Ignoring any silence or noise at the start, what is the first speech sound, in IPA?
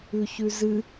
ʉ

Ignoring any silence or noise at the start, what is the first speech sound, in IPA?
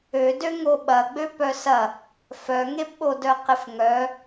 ø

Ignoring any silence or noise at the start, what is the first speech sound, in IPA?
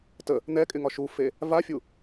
t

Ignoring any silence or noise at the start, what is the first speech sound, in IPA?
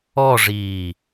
ɔ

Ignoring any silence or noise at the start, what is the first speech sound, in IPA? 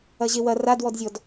ɐ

